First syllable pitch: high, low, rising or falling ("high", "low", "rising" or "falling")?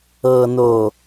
low